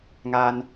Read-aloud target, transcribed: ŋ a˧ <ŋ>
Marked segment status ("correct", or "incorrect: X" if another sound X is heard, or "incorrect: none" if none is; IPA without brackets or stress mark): incorrect: n